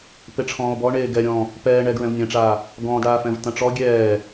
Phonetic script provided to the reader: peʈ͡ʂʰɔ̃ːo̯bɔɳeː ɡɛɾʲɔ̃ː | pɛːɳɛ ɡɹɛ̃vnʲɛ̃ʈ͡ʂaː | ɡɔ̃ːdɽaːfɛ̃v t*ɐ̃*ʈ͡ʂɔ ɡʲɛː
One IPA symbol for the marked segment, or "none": ɐ̃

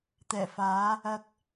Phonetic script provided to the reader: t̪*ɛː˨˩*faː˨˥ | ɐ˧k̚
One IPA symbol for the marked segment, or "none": ɛː˨˩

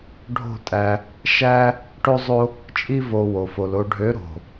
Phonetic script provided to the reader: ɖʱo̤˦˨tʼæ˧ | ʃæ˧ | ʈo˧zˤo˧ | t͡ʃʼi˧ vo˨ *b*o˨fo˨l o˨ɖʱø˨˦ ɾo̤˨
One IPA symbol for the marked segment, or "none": w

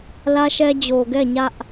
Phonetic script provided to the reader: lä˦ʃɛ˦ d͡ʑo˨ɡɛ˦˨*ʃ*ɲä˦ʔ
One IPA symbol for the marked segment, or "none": none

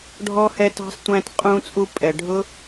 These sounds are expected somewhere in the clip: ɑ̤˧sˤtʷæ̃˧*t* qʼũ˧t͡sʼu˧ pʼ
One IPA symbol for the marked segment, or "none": t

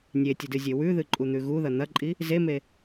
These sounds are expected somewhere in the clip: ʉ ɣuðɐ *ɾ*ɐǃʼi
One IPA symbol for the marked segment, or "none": n̪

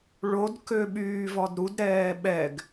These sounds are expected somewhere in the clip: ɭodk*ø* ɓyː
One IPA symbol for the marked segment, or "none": ø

